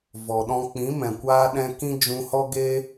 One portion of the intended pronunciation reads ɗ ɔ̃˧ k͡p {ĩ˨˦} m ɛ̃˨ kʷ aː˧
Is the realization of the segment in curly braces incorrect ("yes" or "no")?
no